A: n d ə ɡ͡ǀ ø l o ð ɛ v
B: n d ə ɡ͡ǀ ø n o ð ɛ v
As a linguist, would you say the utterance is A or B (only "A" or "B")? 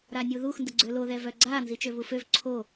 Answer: A